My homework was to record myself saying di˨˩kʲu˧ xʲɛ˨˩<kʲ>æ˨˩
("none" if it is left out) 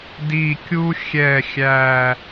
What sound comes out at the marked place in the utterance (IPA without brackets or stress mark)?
xʲ